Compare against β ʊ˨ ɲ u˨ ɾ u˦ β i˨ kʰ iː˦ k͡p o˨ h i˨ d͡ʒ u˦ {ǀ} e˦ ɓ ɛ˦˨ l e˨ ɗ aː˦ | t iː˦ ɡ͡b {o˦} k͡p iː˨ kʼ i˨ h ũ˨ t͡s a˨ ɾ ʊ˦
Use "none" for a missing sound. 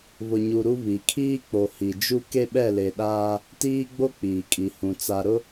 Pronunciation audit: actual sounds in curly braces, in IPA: k, o˦

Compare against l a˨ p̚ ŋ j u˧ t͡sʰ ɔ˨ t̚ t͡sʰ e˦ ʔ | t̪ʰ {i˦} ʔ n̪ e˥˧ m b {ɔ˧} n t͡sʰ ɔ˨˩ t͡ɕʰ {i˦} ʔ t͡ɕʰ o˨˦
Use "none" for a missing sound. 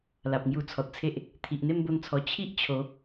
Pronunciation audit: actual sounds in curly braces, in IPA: i˨, o˧, i˦

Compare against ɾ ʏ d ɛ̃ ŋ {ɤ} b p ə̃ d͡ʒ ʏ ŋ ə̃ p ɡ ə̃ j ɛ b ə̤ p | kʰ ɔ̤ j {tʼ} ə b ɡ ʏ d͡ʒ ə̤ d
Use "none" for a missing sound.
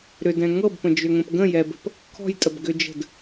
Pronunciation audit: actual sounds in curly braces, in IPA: ɤ, tʼ

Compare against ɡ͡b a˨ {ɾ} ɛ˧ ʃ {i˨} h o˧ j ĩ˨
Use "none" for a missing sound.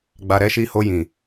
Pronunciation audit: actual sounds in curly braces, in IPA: ɾ, i˧

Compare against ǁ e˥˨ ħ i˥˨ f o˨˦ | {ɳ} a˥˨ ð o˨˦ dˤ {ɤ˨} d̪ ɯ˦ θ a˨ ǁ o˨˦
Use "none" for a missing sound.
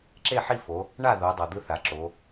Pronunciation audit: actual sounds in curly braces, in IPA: ɳ, ɤ˨

